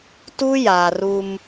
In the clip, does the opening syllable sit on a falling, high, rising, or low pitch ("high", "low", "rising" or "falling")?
high